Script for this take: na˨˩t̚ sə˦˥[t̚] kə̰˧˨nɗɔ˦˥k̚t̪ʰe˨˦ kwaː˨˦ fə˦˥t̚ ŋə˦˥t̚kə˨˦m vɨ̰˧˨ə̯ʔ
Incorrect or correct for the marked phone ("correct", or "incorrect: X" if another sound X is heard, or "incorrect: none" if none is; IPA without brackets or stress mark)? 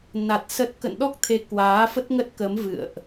correct